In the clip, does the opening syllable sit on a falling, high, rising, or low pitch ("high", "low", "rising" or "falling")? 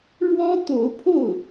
high